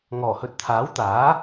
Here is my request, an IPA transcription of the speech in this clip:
ŋ ɔː˨˩ h ɵ˨ t̚ t̪ʰ aː˨˥ w t̪ aː˨˥

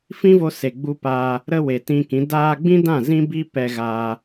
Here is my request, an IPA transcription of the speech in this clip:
f ĩ˦ v o˧ s e˨ ɡ͡b u˧ p aː˧ | ɾ ə˧ w e˨ t ĩ˧ k ĩ˨˦ d aː˧ ɡ͡b ĩ˦ d ã˦˨ z ĩ˦ b i˦ p ɛ˧ ɣ aː˧

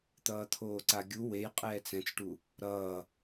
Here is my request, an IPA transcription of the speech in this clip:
t̪ ʌː t̪ʰ oː ǀ a ɡʲ u w e j qʼ ɛː t͡s ɛ̃ t͡s ʈ u | ɾ ʌː

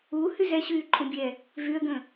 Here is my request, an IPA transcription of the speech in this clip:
u h y z ɛ ɕ yː ǃʼ ũ bʲ ɛ | v y ə̯ ɡ ə̃

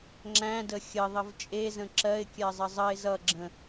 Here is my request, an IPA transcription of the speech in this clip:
ŋ͡ǁ æ̃ d ə xʲ ə ðˤ ə v t͡ʃʼ e z ə̃ ǁ ɜ ɪ̯ kʲ ɜ zˤ ə zˤ ə ɪ̯ z ʌ ɡ͡ǁ ə̃

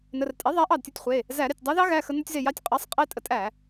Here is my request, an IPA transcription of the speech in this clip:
n ə˩˧˩ r tʼ e˩˥ ðˤ æ˩˥ ʔ ɑ˧˩ d tʲ o˧ tʲ χʷ e˩˧˩ | z æ˧˩˧ ɾ e˩˧˩ tʲ dˤ ɑ˧˥ ð ɑ˧˥ ɣ æ˩˧˩ x ə˧ n o˧ tʲ z e˧˩ j ɑ˧ tʲ qʼ ɑ˩˥ sˤ qʼ e˧ tʼ ə˩˥ tʼ æ˧˩˧

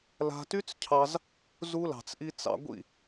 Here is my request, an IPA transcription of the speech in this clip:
l a̤˧ t y˦ t͡s cʰ ɑ˧ z | z u˧ l ɑ̤˨ t͡s ʔ i˧ t͡s ɑ̰˧ ɡʷ ḭ˦˨

